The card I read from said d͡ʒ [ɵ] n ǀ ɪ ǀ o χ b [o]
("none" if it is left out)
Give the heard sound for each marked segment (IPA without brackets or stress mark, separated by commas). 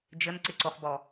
ə, ɔ